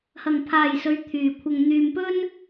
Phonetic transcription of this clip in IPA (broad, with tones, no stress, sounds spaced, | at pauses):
h ɐ˨ ŋ pʰ aː˨ j s ɵ˨˧ ɥ t̪ʰ yː˨ kʷʰ ɐ˧ ŋ n̪ yː˧ m p ɵ˥ n